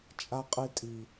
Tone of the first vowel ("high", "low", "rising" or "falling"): low